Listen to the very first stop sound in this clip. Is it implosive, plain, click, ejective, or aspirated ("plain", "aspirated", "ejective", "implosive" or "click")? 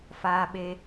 implosive